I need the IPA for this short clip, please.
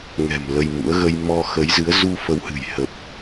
ŋ ɛ̤˨˩ m l ə˧ j m ṵ˧˥ ə̯ ɣ ə˧ j m ɔ˧ x ə˨˦ j z ɨ˨˦ ə̯ z u˧ f ə˨˦ w h ɨ̤˨˩ j h ə˨˩ p̚

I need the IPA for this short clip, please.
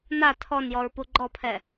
n a tʰ ɔ n j ɔ ɹ p u ɡ͡ǃ ɔ pʰ ɛ

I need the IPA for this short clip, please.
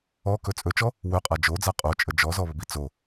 ɔ k ɵ t͡sʼ ɵ t͡ʃ ɔ | w ɵ qʼ a d͡ʒ o d͡z a qʼ o t͡ʃʼ ə d͡ʒ ɔ z ɔ β ə b i t͡s o

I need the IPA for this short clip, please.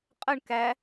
qʼ ə ɳ k æ

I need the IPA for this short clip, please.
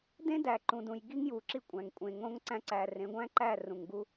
d ẽ˦ d æ˨ ǃ ũ˨ d ũ˨ j ɡ i˦ ŋ j u˨ ǁ i˦ kʷʼ æ̃˨ ŋ kʷʼ ẽ˨ ŋ õ˦ ŋ ǀ æ̃˦ ǀ æ˨ r ẽ˨˦ ɡʷ æ̃˦ ǃ æ˦˨ r ũ˨ ŋ ɡ u˦

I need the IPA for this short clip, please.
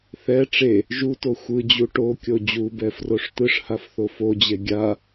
θ ɛ ʈ͡ʂ e | ʒ u t o xʷ ɯ d͡ʑ u ʈ o kʲ o d͡ʑ u b ɛ f r o ʂ t̪ ɯ ʂ h a f θ o f o d͡ʑ e ɡʲ a

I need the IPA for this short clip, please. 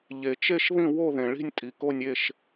ʎ e˨ t͡ʃ e˥˨ ʃ ð ĩ˥˨ w o˥˨ ð ẽ˨ ɭ i̤˥˨ nʲ tʼ i˨ k o˥˨ nʲ e˥˨ ʃ

